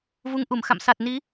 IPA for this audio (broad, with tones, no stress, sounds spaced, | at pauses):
v u˨˦ ŋ ʔ u˧˩ m x a̰˧˨ m s a˨˩ t̚ n i˨˦